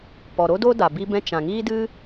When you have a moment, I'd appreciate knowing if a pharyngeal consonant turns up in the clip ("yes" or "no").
no